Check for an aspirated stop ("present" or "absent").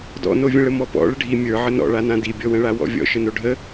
absent